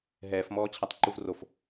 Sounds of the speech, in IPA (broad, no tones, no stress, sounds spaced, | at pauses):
ɦ ɛː f m ɔː t͡ɕʰ a tˤ ǃ u v r o f